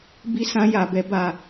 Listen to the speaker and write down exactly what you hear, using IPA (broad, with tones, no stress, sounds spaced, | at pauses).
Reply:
b i˦ s ã˦ j a˧ b ɛ˦ b a˦˨